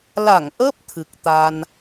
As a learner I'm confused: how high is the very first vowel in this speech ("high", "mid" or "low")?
low